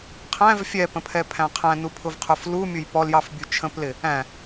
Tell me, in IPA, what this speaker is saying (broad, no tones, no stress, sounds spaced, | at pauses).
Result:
qʰ æ̃ v fʲ ɛ p ə̃ pʰ ɛ pʰ æ̃ qʰ æ̃ n u pʰ ʊ v qʰ ʊ f l u mʲ ʊ j p ɔ l j ɑ f bʲ u t͡ʃʰ ə̃ p l ɪ | æ̃